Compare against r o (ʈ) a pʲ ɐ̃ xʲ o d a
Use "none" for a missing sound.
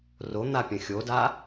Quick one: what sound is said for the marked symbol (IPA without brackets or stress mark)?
n̪